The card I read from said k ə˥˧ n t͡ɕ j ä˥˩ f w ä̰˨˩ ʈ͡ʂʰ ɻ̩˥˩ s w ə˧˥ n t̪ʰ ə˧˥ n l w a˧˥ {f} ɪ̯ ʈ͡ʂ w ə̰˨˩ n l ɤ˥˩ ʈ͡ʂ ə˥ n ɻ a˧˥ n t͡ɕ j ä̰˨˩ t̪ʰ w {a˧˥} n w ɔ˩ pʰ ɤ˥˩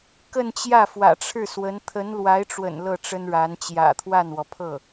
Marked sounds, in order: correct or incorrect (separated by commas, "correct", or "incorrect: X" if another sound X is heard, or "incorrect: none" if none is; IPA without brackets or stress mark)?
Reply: incorrect: none, incorrect: a˥˩